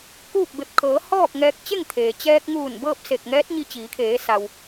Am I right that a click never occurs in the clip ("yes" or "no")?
yes